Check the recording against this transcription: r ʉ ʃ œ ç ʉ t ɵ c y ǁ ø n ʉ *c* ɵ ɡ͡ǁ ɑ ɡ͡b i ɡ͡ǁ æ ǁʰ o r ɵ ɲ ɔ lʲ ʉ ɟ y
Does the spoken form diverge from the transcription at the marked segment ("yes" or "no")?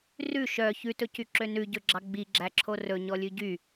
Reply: yes